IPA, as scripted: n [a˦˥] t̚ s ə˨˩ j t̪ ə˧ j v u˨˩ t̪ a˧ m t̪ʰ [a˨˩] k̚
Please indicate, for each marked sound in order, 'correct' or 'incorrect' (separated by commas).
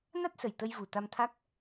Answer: correct, incorrect